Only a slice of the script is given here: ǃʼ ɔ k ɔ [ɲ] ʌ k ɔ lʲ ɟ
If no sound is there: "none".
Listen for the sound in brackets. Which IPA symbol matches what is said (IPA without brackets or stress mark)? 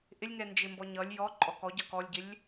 ɟ